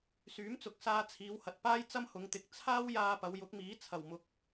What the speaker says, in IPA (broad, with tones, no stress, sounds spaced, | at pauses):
s yː˨˥ m t͡s ʊ˨˥ k̚ s aː˧ t͡sʰ iː˨˧ w h ɐ˨ t̚ p aː˥ j t͡s ɐ˥ m h ʊ˨˧ ŋ t̪ ɪ˨˥ k̚ t͡sʰ aː˥ w j aː˧ p ɐ˨˧ w j ʊ˨˥ k̚ m iː˨˥ t͡sʰ ɐ˨˩ w m ʊ˨ k̚